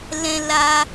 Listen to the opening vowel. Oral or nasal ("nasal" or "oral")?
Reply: nasal